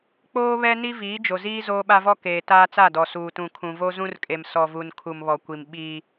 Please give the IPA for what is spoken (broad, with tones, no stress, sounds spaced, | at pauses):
k͡p oː˦ β ɛ˦ n i˦ v iː˨˦ d͡ʒ o˨ z iː˦ z oː˦ ɓ a˦ v ɔ˦ k eː˨ t aː˦ t͡s a˦˨ d ɔ˨ s uː˨ t ũ˨ kʰ ũ˨ v o˦ z ũ˦ r kʼ e˨ m s ɔ˨ v u˨ n kʰ u˨ m β ɔ˨ kʷ i˨ m ɓ iː˦